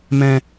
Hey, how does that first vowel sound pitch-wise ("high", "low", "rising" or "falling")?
low